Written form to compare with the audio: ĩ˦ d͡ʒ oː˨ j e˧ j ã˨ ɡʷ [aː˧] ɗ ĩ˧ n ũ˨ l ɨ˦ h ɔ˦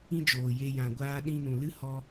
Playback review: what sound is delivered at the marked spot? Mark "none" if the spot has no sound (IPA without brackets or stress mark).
aː˧